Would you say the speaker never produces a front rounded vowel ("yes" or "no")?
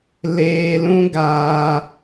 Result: yes